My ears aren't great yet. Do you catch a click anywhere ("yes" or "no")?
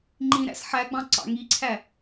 yes